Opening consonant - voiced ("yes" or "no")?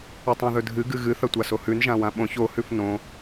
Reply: no